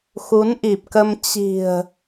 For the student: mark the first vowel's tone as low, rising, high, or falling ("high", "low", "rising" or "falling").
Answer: rising